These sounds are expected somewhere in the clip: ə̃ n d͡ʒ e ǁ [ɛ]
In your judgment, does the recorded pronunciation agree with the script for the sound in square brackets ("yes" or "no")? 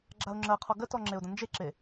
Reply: no